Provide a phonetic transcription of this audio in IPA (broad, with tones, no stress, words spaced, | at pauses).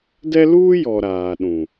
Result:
dɛ˦luː˦jɔ˨ ɾaː˨ɗũ˨